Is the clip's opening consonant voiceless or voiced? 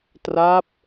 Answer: voiceless